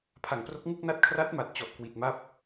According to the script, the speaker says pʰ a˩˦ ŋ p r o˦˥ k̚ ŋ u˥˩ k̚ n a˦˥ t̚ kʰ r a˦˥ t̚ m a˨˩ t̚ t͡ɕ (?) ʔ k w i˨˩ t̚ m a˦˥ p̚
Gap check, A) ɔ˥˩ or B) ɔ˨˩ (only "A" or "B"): B